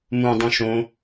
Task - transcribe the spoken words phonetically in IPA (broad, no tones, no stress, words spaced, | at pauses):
mũ dˤũʃõ